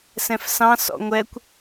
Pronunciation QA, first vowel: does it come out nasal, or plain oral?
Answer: nasal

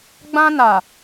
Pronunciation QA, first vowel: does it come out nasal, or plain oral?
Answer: nasal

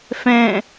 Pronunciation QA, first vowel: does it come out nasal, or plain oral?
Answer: nasal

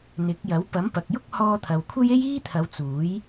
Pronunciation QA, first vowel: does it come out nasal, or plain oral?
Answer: oral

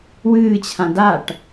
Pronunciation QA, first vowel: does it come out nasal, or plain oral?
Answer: oral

